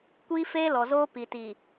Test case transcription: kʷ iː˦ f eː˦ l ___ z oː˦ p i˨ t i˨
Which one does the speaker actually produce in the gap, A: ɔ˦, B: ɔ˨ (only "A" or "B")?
B